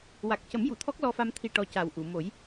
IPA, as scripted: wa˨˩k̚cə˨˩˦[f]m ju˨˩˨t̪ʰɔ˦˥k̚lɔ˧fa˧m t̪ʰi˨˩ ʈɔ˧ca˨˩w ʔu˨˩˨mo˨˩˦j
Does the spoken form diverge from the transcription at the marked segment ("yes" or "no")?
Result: yes